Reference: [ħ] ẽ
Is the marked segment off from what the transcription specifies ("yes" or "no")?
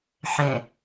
no